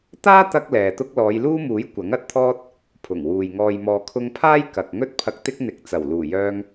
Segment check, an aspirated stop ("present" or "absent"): present